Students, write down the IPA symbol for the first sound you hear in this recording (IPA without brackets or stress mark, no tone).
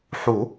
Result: ħ